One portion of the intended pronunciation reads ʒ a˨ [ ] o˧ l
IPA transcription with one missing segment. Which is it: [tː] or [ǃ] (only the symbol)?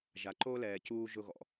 ǃ